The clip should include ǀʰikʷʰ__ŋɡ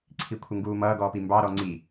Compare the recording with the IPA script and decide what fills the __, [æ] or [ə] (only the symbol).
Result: ə